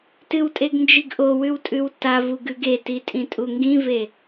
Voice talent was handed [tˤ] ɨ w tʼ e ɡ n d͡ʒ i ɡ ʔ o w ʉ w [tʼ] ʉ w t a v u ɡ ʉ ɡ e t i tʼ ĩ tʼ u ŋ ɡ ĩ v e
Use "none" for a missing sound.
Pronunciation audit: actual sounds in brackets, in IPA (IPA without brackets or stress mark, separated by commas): t, tʼ